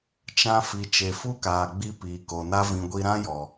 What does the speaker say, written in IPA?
t͡ʃ ã˧ f i˨ t͡ʃ e˨ f u˦ k aː˨ ɡ͡b i˧ p iː˨ k o˨ n a˦ v ĩ˧ ɡʷ i˧ ɾ ã˦ j ɔ˨

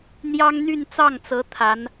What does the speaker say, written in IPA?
n̪ j ɑ˥ ŋ n̪ y˥˧ n t͡s ɑ˥˩ ŋ t͡s ɤ˧˥ t̪ʰ a˧˥ n

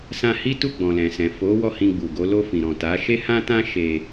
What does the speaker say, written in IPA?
s ã˧ h i˦ t u˦˨ ɡ͡b ɔ̃˨ l ɛ̃˨ s ɛ̃˨ f o˨˦ w ɔ˦˨ h ĩ˧ ɡ͡b u˨ ɡ o˨˦ l o˧ f ĩ˨ ɾ ɔ̃˨ t a˨˦ ʃ e˦ h ã˦ t ã˦ ʃ e˧

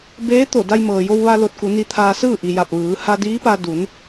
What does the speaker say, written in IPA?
b eː˧˥ t̪ o˧˩ d a˧ j m ɤː˩ j o˧ w ʋ a˧ l o˧ t̚ k u˩˧ n i˧ t̪ʰ aː˧ s ɯː˥˨ ʔ i˩ j a˧˩ p̚ ʋ ɯː˩˧ h a˧ d iː˧˥ p a˧ d u˩˧ n

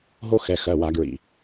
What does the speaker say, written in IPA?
ɦ o˦ x ɛ˩˧˩ x ɜ˩˧˩ w a˧˩˧ ɡ ɹ ḭ˩˧˩

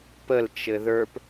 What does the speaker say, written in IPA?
p ə l t͡ʃ ɘ ð ə˞ p

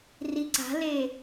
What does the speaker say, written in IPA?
r i ǀ a̤ l e

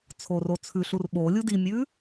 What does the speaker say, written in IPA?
t͡sʰ o r o t͡sʰ ʉ ɬ u r ɓ o lʲ u d i mʲ ʉ

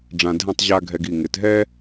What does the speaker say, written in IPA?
ɖ͡ʐ ã˧ dʱ ɛ̃˥˧ tˤ ʑ a˥ ɡʱ ɛ˧ ɡ i˧˩ ŋ ɪ˩˧ t ɦ ɛ˥

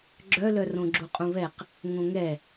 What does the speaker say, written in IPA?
ɡ͡ǁ œ l œ r õ ɡ͡ǁ u qʼ ũ β ɛ q | ŋ õ ŋ ɛ

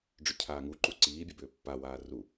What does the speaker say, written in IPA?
ɖ͡ʐ ʏ cʰ aː ŋ u ǃ u ǀ iː bʲ ɐ b ʏː pː a w aː r u

